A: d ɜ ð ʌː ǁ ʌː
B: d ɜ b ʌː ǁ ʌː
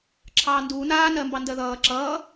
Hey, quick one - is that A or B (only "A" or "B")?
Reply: A